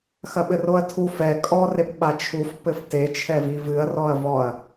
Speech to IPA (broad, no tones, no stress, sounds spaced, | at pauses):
x ɐ ɓ ɘ r o ɐ̯ tʰ u f ɛ kʼ ɔ r e p ɓ a t͡ʃʰ u f p ɘ f t e t͡ʃʰ ɛ v i v ɨ ɐ̯ r ɔ ɐ̯ v ɔ ɐ̯